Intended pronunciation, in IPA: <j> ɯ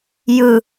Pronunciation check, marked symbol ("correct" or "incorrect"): correct